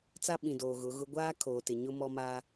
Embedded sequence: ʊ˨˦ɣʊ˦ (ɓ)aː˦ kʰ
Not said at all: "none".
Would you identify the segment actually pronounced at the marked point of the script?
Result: ɡʷ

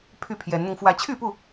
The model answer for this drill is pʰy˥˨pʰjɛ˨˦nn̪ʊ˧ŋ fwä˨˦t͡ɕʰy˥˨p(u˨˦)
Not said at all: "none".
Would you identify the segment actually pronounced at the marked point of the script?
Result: u˥˨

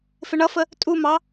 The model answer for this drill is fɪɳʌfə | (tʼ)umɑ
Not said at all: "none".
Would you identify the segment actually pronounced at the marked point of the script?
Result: tʼ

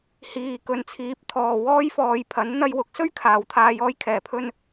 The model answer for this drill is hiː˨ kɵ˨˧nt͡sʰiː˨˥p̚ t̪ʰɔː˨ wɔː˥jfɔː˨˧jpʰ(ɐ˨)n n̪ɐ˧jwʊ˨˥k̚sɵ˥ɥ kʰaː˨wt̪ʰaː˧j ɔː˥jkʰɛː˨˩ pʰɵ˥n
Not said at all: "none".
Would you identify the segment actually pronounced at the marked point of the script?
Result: ɐ˨˥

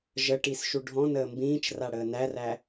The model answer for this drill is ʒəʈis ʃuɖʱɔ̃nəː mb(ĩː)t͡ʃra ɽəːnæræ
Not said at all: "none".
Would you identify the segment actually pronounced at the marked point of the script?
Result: ĩː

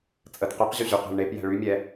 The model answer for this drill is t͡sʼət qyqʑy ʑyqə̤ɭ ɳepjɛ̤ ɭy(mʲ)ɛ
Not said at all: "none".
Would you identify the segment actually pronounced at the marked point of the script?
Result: mʲ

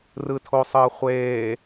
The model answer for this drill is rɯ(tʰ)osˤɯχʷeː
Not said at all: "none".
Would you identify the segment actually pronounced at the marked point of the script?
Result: tʰ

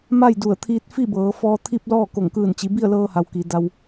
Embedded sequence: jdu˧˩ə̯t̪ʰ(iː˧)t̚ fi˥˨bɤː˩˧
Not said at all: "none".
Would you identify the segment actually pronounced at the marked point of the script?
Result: iː˧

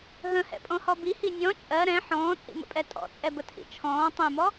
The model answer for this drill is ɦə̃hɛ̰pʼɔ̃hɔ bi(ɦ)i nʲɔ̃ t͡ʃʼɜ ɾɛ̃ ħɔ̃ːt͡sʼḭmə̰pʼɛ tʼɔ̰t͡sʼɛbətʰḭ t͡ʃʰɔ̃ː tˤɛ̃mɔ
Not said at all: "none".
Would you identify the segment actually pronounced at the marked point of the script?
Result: h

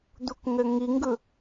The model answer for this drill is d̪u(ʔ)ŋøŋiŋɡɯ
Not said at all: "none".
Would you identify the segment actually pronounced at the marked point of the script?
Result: k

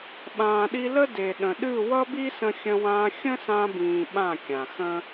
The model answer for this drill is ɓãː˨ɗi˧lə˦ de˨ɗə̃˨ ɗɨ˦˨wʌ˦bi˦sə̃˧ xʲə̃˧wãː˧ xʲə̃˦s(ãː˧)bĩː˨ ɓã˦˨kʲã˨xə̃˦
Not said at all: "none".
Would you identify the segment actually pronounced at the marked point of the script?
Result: ã˧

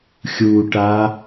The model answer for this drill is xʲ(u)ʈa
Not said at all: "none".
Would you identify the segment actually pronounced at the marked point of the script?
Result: u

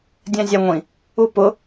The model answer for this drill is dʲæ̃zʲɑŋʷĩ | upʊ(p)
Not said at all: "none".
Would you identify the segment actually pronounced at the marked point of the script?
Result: none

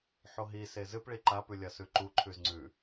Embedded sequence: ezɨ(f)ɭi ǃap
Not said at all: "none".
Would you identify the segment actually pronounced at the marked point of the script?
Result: p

